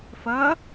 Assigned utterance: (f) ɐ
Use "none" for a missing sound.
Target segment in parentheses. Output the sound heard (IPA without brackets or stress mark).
f